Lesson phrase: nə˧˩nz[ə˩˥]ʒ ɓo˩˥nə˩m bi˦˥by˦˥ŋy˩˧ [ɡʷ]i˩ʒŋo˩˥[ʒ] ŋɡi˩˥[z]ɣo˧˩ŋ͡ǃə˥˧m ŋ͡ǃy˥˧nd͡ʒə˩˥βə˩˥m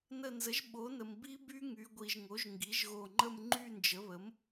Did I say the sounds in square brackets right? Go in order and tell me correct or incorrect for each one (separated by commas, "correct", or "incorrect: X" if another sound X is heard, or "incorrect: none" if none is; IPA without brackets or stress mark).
correct, correct, correct, incorrect: ʒ